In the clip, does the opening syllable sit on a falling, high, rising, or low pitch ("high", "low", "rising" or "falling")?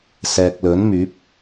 low